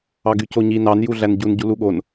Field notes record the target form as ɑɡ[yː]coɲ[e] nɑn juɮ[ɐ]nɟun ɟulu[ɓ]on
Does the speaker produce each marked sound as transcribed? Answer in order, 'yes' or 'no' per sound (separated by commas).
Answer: no, no, no, no